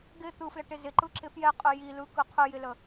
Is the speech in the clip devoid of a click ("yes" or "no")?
no